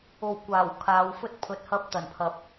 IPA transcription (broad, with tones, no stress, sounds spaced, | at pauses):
o˨˩ w kʷ aː˨˩ w kʰ aː˨˧ w f ɵ˥ t̚ pʰ ɵ˨˥ t̚ h ɐ˧ p̚ t̪ ɐ˨˩ n pʰ ɐ˨ p̚